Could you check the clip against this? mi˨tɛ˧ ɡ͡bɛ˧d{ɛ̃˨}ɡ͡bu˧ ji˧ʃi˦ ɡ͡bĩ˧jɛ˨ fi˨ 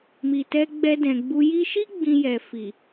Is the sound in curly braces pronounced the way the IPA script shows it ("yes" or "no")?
yes